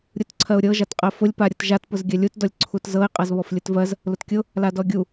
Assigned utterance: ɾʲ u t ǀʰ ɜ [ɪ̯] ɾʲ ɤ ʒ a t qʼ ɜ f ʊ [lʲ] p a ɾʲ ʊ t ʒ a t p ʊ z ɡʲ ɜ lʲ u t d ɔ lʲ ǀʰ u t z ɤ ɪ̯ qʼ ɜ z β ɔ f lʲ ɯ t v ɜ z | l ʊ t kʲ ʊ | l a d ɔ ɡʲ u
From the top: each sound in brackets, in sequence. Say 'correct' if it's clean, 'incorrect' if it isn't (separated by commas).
incorrect, correct